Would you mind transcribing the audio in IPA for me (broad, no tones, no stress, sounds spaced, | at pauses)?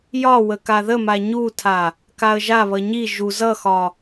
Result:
j ɒ w ə k a ð ə m a ɲ u tʰ a | k a ə̯ ʒ a β ʌ ɲ i ʒ u z ʌ x ɒ